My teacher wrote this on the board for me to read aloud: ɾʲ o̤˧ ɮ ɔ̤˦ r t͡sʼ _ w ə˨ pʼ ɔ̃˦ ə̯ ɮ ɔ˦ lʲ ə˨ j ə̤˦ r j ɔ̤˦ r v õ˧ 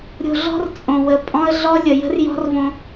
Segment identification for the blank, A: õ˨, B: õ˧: A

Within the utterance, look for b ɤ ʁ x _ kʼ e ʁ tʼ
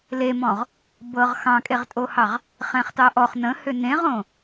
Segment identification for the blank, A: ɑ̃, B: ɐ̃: A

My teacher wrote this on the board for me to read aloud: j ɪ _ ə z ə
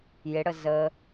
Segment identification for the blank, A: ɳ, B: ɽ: B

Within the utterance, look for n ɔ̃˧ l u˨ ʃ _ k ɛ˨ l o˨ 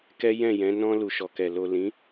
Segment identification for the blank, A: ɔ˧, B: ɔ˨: B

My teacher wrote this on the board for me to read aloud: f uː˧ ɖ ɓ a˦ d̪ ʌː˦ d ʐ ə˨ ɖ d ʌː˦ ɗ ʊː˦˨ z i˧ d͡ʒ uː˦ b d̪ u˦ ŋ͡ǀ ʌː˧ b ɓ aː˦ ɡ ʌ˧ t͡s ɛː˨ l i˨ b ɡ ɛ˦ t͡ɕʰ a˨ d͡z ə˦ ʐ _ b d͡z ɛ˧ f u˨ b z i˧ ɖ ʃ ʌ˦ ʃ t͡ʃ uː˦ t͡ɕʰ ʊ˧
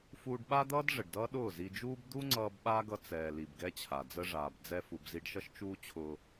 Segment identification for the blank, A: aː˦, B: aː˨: B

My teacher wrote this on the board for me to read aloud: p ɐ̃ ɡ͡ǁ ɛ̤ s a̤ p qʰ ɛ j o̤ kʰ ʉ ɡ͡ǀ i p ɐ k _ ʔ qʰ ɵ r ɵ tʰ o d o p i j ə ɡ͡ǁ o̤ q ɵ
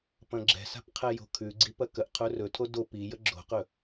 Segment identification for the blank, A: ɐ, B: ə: B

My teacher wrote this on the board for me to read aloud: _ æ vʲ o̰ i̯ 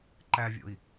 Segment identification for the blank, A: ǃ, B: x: A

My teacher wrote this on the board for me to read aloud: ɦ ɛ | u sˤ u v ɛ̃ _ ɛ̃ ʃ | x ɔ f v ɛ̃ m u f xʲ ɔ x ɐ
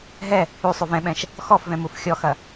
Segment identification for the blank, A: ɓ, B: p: A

